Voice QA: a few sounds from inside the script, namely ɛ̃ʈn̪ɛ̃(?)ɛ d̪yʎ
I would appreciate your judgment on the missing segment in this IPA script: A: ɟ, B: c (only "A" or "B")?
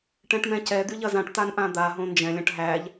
B